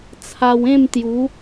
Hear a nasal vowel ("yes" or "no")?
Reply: yes